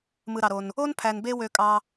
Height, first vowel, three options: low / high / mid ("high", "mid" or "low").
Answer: high